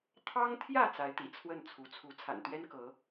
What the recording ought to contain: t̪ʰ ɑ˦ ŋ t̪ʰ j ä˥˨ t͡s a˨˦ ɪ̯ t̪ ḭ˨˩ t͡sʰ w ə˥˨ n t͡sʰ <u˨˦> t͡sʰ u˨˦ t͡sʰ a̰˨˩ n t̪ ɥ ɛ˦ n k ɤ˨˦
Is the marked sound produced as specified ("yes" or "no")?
yes